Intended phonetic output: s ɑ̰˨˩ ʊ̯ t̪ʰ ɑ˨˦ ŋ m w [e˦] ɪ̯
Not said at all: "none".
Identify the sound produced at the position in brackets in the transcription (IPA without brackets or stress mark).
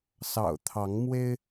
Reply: e˦